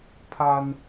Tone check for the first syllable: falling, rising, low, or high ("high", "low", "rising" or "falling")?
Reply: high